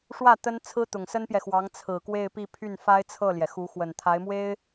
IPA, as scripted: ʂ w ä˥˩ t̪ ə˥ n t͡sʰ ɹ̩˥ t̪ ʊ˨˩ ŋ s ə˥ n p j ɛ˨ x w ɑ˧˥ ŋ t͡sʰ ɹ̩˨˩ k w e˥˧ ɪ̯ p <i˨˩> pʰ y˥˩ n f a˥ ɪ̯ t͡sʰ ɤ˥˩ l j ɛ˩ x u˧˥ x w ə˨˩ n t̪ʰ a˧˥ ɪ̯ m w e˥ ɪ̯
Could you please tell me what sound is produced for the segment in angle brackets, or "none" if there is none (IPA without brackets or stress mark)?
i˥˧